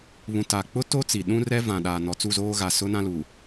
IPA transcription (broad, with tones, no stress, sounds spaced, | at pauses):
β ũ˨ t a˨ k͡p ʊ˦ t o˦ t͡s i˨ ɗ ũ˦ r ɛ˦ v ã˨ ɗ aː˨ n ɔ˨ t͡s u˦˨ z oː˦ ɣ a˨ s ʊ˦ n ã˦ l u˨